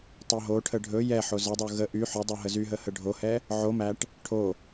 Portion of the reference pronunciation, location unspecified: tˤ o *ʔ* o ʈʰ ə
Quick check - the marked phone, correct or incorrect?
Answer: incorrect